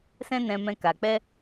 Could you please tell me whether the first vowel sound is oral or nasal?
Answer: nasal